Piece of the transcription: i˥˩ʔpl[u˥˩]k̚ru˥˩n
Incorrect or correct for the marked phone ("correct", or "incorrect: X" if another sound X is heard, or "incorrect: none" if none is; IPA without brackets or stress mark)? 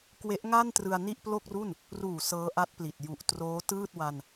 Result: incorrect: o˥˩